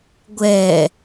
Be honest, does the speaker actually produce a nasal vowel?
no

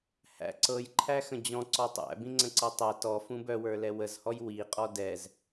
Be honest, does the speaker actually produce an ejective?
yes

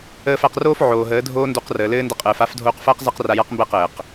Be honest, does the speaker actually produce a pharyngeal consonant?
yes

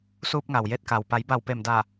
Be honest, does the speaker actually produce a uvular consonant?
no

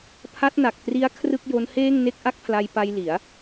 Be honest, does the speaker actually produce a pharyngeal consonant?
no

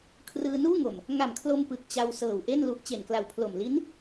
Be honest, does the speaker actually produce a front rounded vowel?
no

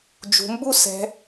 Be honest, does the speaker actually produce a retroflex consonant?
no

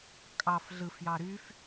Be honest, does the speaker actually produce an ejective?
yes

